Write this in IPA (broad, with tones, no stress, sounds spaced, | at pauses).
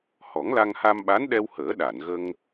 h ɔ˨˩˦ ŋ l a˧ ŋ h a˧ m ɓ a˧˥ n ɗ ɛ˧ w h əː˨˩˦ ɗ a˨˩˨ n ɣ ə˧ ŋ